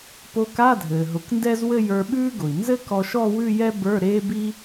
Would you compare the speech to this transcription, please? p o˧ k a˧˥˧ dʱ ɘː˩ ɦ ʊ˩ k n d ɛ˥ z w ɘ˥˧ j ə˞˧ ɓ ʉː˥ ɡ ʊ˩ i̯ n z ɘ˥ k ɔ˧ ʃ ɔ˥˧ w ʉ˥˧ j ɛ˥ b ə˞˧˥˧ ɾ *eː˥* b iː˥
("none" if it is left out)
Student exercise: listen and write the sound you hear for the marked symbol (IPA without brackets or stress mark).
eː˥